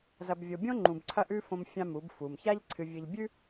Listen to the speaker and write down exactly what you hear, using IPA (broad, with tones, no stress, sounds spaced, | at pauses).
z ɐ˨ b vʲ o˨ bʲ õ˦ ŋ͡ǃ ũ˨ b ǀʰ ɐ˦ ʔ ʉ˦ f õ˦ m fʲ ã˦ m u˨˦ b f u˨ m ç a˦ ʎ ǀʰ ɨ˨ vʲ ɨ˨ ʎ bʲ ʉ˦